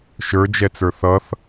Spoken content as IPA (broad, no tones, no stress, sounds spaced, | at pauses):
ʃ ə˞ d͡ʒ ɛ t͡s ə˞ θ ʌ θ